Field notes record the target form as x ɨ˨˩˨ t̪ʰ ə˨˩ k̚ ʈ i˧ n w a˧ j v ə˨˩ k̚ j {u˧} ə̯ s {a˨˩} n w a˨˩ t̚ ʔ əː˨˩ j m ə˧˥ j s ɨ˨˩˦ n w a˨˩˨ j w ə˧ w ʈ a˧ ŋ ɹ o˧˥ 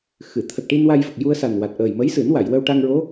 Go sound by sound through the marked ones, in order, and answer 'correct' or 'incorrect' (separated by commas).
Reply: correct, correct